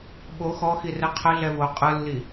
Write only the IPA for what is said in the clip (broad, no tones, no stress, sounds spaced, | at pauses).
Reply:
ɓ o x ɔ x i r ɛ qʰ ə ɮ ɛ v o qʼ ɯ lː i